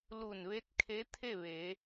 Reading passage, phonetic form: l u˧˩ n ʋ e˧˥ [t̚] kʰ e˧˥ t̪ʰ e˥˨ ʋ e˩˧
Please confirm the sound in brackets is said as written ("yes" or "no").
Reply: yes